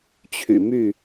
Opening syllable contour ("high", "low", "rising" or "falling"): low